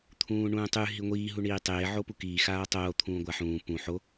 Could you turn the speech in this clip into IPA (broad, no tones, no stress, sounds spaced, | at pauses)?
t̪ʰ ũː ɳ ũː tˤ ʉ ɦ i ŋʷ iː ɦ u ɳ iː tˤ eː ʕ o p u k iː x aː tˤ oː t̪ʰ ũː ɡʷ a ħ ũː p ũ ħ o